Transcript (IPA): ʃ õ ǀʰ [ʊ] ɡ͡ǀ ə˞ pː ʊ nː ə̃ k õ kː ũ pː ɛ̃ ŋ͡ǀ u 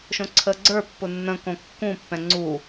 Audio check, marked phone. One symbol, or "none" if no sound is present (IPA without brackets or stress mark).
ə